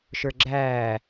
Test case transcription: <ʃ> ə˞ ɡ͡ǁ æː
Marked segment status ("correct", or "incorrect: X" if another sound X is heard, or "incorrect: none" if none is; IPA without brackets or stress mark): correct